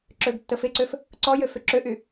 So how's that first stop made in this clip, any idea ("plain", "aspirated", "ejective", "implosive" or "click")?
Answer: click